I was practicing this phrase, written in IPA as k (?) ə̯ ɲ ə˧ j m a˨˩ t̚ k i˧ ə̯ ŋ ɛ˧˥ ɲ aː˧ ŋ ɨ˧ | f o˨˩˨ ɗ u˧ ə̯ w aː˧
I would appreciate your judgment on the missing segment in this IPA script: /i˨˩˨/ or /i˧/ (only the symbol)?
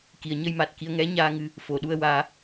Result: i˨˩˨